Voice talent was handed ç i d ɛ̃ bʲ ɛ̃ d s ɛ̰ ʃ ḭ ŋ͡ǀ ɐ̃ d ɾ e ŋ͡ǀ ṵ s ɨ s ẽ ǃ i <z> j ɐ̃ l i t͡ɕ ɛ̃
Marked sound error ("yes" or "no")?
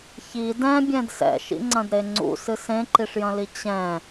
yes